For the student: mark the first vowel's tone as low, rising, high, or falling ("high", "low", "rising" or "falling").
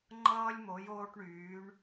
high